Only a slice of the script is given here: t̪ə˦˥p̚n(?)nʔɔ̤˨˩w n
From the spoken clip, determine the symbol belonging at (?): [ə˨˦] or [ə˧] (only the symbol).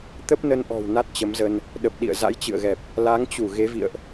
ə˧